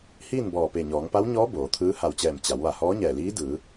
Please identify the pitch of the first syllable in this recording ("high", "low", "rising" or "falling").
falling